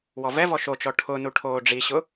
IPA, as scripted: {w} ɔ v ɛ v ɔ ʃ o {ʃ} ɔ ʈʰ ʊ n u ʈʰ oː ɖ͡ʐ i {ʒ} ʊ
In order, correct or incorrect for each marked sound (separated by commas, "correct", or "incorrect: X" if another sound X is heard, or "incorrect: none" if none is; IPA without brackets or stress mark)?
correct, incorrect: t͡ʃ, incorrect: ɕ